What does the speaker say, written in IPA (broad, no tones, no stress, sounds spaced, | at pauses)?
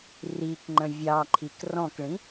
r i k ŋ͡ǃ ə̃ vʲ ɑ ǃʰ i k r ɔ̃ k ɭ ĩ